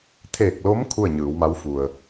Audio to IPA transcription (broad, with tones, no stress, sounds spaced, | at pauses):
t̪ʰ eː˧˩ k̚ l o˧˥ m kʰ u˥˨ ə̯ ɲ ɯː˩˧ w m a˧˥ w f u˩ ə̯